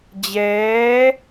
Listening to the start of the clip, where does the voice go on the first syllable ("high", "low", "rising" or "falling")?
rising